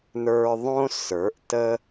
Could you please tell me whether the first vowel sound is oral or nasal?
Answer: oral